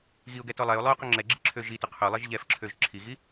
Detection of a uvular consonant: present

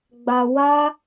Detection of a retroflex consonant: absent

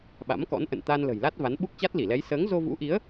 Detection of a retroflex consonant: absent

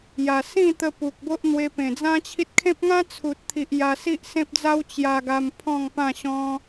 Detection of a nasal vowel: present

